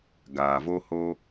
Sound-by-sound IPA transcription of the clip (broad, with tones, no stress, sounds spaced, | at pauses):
ɡ aː˨ v o˦ h o˦